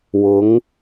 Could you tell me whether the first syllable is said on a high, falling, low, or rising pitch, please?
rising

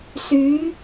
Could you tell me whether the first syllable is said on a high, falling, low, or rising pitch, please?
rising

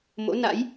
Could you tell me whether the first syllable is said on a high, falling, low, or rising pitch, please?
rising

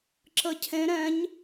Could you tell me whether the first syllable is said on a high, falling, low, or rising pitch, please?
rising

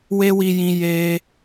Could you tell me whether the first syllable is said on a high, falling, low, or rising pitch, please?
high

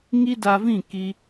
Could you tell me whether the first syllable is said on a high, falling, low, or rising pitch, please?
high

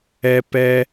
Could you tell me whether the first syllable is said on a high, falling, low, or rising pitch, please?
high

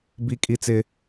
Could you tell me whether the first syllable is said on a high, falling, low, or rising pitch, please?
high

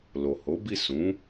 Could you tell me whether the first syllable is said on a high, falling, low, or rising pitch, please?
low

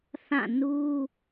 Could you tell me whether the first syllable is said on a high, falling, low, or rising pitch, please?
falling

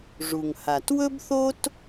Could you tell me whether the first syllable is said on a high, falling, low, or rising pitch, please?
low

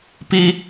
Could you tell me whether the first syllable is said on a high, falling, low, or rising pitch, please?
high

